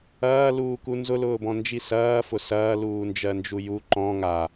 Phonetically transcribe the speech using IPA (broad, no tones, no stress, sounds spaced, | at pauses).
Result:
ɐː l uː k u n z ʊ l ʊː b ɔ̃ n d͡ʒ i s ɐː f ʊ s ɐː l uː n d͡ʒ ɜ n d͡ʒ u j u ǃ ɔ̃ ŋ a